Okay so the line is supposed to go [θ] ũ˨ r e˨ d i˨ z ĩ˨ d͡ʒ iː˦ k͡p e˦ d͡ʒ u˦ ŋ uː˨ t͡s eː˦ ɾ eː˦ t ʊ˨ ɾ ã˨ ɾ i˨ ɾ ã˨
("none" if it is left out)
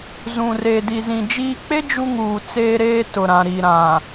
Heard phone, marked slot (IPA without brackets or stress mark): z